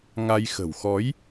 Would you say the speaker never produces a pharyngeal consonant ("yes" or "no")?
yes